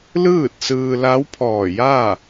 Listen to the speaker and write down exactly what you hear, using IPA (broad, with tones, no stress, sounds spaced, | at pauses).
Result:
l ɯː˥˨ t̚ s ɯː˧ l a˧˥ w pʰ ɔː˧˩ j aː˥˨